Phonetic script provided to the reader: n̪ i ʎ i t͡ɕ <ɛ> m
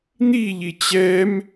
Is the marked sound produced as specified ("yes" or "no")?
yes